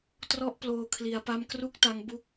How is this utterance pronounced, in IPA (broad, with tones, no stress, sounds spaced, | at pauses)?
t r ɔ˥˩ ʔ p l oː˧ kʰ l i˦˥ a̯ p a˥˩ m k r u˥˩ k̚ t a˦˥ ŋ b u˥˩ k̚